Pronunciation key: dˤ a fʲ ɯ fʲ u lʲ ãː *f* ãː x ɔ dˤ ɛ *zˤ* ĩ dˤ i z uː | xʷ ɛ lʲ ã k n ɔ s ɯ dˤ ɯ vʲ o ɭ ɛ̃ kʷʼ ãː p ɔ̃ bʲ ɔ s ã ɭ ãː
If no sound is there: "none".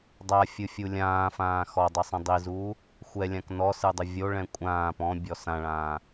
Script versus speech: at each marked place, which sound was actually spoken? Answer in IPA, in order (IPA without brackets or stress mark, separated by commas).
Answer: f, sˤ